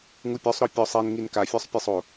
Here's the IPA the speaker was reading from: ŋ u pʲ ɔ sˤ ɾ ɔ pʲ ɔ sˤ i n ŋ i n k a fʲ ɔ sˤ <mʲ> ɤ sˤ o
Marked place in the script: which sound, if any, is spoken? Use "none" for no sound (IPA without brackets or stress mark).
pʲ